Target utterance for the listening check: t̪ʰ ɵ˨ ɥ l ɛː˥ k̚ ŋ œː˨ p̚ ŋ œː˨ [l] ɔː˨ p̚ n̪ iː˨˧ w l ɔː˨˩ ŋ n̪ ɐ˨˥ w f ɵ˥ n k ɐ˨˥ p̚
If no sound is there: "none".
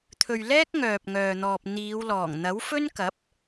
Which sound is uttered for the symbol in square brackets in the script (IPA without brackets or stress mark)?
n̪